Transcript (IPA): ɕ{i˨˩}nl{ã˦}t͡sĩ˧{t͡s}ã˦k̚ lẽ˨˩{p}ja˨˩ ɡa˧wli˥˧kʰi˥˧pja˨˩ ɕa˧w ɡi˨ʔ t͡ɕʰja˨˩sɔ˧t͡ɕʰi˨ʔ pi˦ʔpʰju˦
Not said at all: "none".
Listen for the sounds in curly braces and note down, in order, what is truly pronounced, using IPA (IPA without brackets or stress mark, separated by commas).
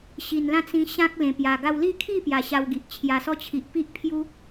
i˨˩, ã˦, ɕ, p